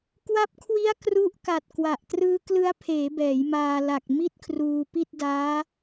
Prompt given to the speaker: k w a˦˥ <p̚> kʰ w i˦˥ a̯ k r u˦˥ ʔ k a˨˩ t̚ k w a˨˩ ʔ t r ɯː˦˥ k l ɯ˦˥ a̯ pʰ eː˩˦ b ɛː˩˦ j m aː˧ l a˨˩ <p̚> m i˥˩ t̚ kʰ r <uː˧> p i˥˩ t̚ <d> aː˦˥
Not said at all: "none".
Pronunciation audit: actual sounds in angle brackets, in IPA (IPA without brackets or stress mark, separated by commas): p̚, k̚, uː˧, d